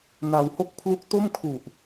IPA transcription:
n a˧ w h o˥˩ k̚ pʰ l u˦˥ k̚ t o˥˩ m kʰ u˨˩ ʔ

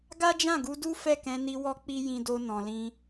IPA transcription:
ɡ a˦ d͡ʒ ã˦˨ ɡ u˧ d u˦ f ɛ˦˨ k ɛ̃˧ n i˧ w ɔ˦ k͡p i˦ j ĩ˧ d o˧ n ɔ̃˨ l ĩ˧

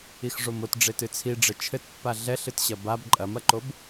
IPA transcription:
i x ʐ o m o t ɖ͡ʐ e t ɨ t͡sʰ i ɖ͡ʐ ɘ t͡ʃʰ ɘ t pː a ɮ ɛ ɬ ɨ t ɕ ɐ b a b ǃʼ ɐ m ɐ ǃ o b

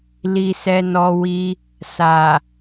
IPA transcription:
l i˧ s ɛ˧ n ɔ˧ w i˧ | s a˨

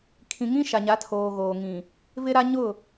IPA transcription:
kʰ ĩ˨ ŋ ĩ˦ ʃ a˨ ɲ a˨˦ tʰ oː˨ ɣ oː˨ ŋ ĩ˨ | v ɪ˦ ɾ a˦ ɲ ʊ˦˨

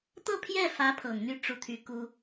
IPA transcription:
t̪ ɤ˥˧ pʰ j ɛ˥˩ f ä˧˥ pʰ ɤ˨˩ ŋ n̪ y˥˧ ʈ͡ʂ u˥˩ t̪ʰ y˥ k u˥

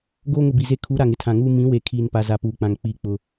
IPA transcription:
ɡ oː˦ ŋ ʊ˨ b i˨ z e˦˨ kʰ u˨˦ ɾ a˨ ŋ ɪ˦ tʰ ã˨ ŋ uː˦ m ĩ˨˦ w e˨ kʰ iː˦ n p a˦ z a˨ p uː˨ k͡p ã˨ ŋ k͡p iː˦ k͡p ʊ˦

